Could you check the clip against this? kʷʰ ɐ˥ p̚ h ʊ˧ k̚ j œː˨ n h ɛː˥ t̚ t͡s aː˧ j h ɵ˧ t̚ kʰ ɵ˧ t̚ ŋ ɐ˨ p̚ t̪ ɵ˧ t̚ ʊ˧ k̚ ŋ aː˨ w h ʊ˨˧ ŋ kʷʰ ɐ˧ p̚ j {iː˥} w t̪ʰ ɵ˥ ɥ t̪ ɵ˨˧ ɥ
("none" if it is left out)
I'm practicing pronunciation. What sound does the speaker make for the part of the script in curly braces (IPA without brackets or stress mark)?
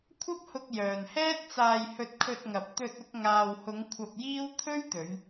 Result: iː˥